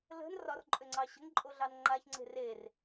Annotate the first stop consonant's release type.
click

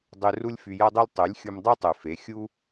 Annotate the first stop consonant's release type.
plain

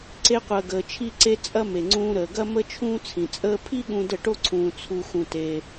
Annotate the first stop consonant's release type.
click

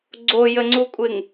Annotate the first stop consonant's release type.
click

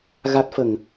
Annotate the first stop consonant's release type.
plain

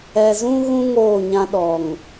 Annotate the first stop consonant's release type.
implosive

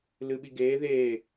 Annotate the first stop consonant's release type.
implosive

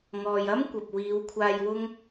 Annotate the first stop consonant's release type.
plain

